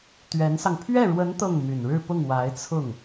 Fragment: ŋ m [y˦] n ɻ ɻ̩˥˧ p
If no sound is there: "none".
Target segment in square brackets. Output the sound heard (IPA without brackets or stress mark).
y˨˩